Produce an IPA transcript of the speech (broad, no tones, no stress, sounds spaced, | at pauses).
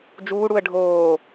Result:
d͡ʒ uː ɽ u ə̯ ɖʱ oː